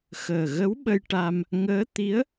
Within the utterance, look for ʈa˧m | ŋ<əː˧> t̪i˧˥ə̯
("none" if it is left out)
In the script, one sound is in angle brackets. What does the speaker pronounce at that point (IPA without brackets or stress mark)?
əː˧˥